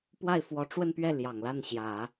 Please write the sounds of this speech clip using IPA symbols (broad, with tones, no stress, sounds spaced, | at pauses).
p w a˥˩ ɪ̯ f w ɔ˧˥ ʈ͡ʂ w ə˥˧ n p ɥ ɛ˥˩ l j ɑ˨˩ ŋ l a˥˩ n ɕ j ä˨˩˦